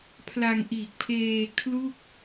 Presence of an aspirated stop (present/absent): present